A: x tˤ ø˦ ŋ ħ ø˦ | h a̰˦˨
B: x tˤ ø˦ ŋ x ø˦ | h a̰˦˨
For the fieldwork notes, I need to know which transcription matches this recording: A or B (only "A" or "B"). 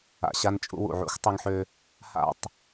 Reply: A